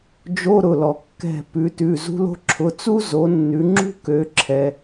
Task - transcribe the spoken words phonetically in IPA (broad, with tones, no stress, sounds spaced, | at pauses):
d͡ʒ o˧˥˧ ɾ ʊ˩˧˩ l ɔ˩ kː ɛ̤˧˩ p ʉ˩˧ t ʉ˩˧˩ z ṳ˥ l o̤˥ ǁʰ ʊ˩˧˩ t͡s u˥ z o˩˧ nː ʉ˩˧ ŋ͡ǁ ṳ˥ k ø˩˧ ǁʰ ɛ˩